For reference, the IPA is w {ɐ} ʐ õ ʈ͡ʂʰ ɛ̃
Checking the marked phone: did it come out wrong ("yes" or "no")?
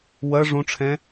no